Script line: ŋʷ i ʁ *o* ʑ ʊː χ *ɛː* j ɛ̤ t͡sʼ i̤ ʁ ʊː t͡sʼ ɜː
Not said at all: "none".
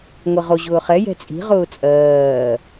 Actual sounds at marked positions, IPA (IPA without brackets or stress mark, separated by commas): o, ɛ